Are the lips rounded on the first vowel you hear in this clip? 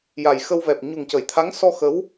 no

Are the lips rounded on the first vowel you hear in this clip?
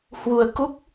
yes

